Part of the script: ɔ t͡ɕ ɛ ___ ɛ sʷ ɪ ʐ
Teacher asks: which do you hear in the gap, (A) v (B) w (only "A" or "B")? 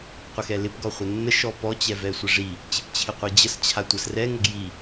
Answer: A